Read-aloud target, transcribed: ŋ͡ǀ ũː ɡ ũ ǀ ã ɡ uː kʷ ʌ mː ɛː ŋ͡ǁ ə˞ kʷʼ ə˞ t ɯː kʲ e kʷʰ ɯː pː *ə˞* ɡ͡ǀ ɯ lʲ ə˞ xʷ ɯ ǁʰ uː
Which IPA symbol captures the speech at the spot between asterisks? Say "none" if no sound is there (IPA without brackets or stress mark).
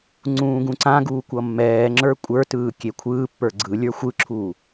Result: ə˞